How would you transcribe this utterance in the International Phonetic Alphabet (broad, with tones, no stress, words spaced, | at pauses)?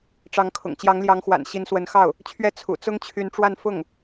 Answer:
ʈ͡ʂɑ˧˥ŋkʰʊ̰˨˩ŋ t͡ɕjɑ˧˥ŋljɑ˧˥ŋxwa̰˨˩n ɕi˧˥nswə˧˥nxɑ˥˩ʊ̯ | t͡ɕʰɥɛ˥˩ t͡sʰṵ˨˩ t͡sʊ˥ŋt͡ɕʰy˧˥nʈ͡ʂwa˥˧n fʊ˥˩ŋ